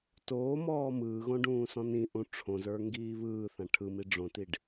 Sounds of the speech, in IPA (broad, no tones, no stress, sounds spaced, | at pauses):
t oː m ɔː m ɯː ɣ õ ɖ ũː s ɔ̃ n ĩ ʔ ũ ʈ͡ʂʰ õ z ə˞ ŋ ɡ iː β ɯː θ ã ʈʰ ɯ m i ɖ͡ʐ õ t i ɖ